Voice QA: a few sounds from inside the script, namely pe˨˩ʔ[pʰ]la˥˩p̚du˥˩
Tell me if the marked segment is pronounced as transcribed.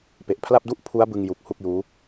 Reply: yes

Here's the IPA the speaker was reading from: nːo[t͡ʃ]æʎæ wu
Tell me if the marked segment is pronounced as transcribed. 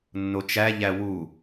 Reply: yes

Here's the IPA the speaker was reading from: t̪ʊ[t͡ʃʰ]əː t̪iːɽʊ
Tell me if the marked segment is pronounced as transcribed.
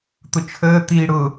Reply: yes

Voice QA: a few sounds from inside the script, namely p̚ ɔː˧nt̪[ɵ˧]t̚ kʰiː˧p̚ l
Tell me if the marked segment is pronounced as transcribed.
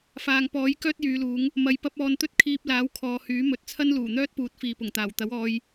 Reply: no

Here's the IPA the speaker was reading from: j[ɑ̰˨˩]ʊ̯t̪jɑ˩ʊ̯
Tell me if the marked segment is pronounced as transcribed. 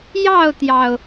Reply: no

